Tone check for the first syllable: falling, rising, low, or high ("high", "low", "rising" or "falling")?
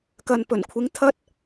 low